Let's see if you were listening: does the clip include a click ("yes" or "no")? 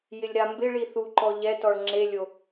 yes